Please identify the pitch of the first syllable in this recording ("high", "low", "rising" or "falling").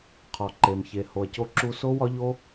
low